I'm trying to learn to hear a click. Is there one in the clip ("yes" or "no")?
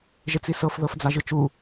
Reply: no